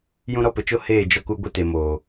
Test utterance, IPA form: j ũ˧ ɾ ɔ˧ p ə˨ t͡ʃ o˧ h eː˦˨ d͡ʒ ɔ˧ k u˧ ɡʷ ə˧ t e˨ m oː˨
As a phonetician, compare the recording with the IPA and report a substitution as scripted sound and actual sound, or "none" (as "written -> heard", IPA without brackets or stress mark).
none